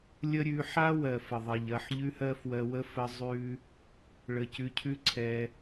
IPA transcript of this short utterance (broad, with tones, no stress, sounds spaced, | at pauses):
lʲ ə˦ ɾʲ ʉ˧ ħ a˦ w ɜ˨ f ə˨ ðˤ ɐ˨ ʎ ɐ˦˨ ħ ʎ ʉ˦ h ɜ˦ f w ɜ˧ w ə˦ f ə˦ zˤ ʉ˦ | ɭ ə˧ c ʉ˧ cʰ ʉ˦ ǀʰ ɛ˧